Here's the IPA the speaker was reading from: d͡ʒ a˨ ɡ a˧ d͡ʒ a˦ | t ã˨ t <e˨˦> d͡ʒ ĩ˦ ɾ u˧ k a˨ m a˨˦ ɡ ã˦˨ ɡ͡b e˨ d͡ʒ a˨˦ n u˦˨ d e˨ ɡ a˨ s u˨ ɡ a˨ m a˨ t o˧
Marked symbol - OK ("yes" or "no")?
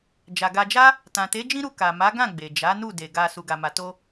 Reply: yes